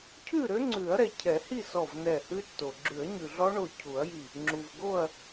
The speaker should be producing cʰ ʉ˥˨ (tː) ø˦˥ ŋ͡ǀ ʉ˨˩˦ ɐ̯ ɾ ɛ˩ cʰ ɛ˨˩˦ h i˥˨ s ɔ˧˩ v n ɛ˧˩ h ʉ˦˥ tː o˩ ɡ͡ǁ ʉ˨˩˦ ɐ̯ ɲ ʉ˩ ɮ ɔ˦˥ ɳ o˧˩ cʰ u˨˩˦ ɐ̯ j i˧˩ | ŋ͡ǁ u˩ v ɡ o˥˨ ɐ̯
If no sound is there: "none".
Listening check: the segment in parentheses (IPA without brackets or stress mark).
ɾ